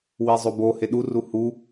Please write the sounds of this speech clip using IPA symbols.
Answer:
wizˤobo heɗuru hu

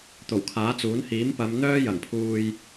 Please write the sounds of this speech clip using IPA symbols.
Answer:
t̪o˨˩wkʰaː˨˥t͡suː˨˥n hiː˨˥mpɐ˨˧mn̪œː˥jɐ˨˩ŋ pʰuː˧j

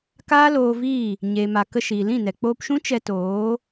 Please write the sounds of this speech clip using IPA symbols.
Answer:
kaː˦ loː˧viː˦˨ | ɲeː˨ma˨kə˧ ʃiː˨lĩ˦˨nɛ˨ k͡poː˧pʃũ˦ t͡ʃɛ˧toː˨˦

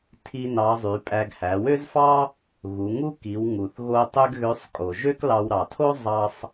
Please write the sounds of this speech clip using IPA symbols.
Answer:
tʰi˥nɑ˧˥ zˤy˩˧pʼæ˧ɡ hæ˩˧wø˥zfɑ˥ | ɣu˩˧ŋu˥ki˩˧w ŋu˩θɣo˧ tˤø˥ɡɣø˧˥sˤ kʼo˩ʒø˥k lɑ˧w ɾɑ˩tʰo˥ zˤɑ˧sˤ

